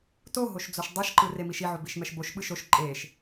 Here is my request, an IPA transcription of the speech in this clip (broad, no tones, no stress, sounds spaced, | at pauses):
t o ɦ o ʃ d͡z o ʃ dˤ ɛ ʃ ǃ ɯ r e m i ʃ i ʕ o b i ʃ m ɛ ʃ b o ʃ ɓ ɯ ʃ o ʃ ǃʼ e ʃ